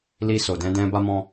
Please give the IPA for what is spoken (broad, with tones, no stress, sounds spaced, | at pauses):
l i˧ s o˨ d ɛ̃˧ d ɛ̃˧ b a˧ m ɔ̃˧